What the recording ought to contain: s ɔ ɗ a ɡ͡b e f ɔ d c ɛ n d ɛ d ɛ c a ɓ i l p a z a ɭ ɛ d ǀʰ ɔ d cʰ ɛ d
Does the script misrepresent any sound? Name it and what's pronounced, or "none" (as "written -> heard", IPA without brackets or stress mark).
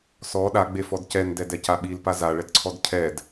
none